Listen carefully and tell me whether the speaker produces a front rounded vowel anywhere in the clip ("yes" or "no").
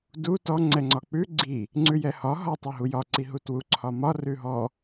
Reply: no